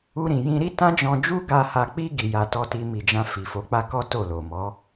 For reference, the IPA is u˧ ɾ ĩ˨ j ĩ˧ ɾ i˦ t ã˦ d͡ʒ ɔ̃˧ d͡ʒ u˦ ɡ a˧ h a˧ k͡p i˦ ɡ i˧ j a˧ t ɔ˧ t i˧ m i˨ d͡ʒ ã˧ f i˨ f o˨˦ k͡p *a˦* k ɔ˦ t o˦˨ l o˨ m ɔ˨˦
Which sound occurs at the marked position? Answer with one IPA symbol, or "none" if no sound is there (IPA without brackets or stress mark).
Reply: a˦